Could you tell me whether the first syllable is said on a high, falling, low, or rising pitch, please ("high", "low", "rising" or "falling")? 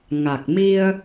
low